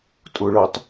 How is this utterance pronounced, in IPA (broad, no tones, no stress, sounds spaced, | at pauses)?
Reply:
tʼ ʊ ɭ ɤ tˤ